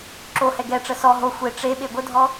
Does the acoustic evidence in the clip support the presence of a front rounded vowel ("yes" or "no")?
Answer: no